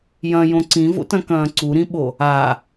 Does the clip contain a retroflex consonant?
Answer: no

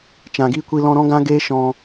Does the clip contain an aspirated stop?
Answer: no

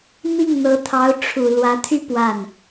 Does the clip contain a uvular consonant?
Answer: no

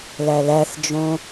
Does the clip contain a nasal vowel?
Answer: yes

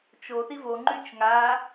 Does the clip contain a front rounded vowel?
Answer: yes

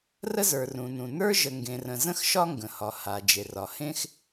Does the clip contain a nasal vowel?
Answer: yes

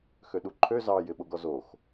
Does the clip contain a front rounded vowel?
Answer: yes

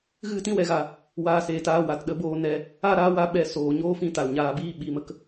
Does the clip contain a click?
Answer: no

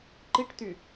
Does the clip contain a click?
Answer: yes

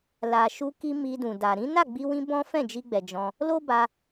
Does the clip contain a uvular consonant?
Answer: no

